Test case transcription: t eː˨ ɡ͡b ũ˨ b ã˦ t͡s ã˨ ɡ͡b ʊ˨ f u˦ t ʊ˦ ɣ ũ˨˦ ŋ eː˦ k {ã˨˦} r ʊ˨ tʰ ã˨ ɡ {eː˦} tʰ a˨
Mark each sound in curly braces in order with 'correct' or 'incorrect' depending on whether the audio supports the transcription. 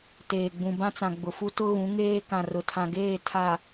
incorrect: ã˨, incorrect: eː˦˨

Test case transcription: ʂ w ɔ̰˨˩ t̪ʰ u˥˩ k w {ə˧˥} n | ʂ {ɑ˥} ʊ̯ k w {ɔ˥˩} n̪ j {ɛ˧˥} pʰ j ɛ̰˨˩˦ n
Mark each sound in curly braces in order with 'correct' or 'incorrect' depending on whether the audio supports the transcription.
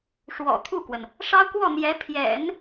incorrect: ə˩, correct, correct, correct

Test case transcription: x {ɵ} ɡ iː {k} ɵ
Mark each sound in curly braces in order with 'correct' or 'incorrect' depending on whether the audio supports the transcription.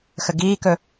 incorrect: ə, correct

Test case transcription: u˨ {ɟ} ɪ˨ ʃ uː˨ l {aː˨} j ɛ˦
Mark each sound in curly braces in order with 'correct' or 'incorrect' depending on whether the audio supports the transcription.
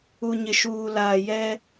incorrect: ɲ, correct

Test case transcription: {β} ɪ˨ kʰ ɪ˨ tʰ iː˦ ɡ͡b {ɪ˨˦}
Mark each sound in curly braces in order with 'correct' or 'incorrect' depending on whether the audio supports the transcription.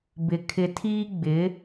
incorrect: b, correct

